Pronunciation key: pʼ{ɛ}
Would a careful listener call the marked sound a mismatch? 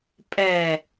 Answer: no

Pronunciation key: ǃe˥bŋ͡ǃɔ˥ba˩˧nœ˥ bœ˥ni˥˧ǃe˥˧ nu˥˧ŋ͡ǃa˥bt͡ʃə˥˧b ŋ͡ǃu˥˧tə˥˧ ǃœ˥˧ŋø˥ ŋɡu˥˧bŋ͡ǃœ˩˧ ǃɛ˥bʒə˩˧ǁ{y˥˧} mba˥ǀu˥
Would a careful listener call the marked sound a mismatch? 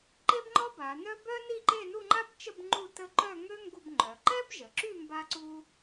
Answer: no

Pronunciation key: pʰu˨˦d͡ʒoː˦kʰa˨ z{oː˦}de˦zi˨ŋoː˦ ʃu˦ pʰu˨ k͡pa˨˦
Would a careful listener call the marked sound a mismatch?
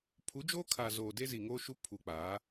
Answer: yes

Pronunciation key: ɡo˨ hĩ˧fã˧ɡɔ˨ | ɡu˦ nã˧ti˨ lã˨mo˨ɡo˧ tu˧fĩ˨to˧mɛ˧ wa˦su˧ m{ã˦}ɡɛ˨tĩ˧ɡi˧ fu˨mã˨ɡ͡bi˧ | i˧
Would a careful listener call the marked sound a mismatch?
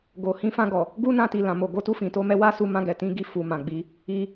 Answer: yes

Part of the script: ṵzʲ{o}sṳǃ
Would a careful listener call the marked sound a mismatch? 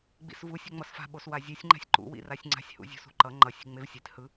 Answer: yes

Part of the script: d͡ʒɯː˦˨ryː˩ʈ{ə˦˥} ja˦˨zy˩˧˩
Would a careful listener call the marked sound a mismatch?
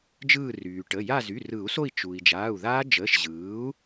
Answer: yes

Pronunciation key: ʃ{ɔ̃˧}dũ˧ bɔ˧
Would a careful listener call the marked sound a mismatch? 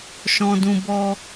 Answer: no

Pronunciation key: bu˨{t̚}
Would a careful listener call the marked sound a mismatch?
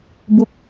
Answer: yes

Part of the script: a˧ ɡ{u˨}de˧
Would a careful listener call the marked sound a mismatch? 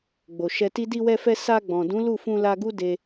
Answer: yes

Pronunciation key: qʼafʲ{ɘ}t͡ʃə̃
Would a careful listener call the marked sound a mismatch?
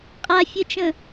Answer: no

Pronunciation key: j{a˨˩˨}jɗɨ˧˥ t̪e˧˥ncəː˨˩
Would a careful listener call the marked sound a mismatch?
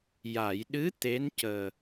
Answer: no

